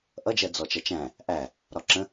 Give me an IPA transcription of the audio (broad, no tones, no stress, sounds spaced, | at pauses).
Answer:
ʔ ʌ d͡ʒ ɜ d͡z ɔ t͡ʃ ʌ t͡ʃ æ̃ | ʔ æ | ɾ ɒ ǁ ə̃